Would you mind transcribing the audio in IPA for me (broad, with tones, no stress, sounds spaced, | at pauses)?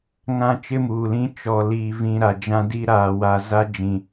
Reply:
ŋ ã˦ t͡ʃ ɪ˦ m uː˨ l ĩ˦ t͡ʃ ɔ˨ l iː˨ v ĩ˨ ɾ a˨ d͡ʒ ã˦ d i˦ ɾ aː˨ w a˨ z a˦ d͡ʒ ĩ˨